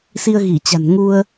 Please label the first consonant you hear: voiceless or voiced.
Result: voiceless